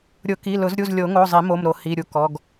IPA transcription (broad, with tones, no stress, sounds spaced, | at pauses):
ɾʲ ʊ˨˩˦ k i˩˧˩ l ʊ˨˩˦ z ɾʲ u˩˧˩ z lʲ o˨˩˦ ŋ o˩˧˩ zˤ i˨˩˦ m o˩˧˩ m ɾ o˨˩˦ h i˩˧˩ ɾʲ u˩˧˩ k ɔ˩˧˩ ɡ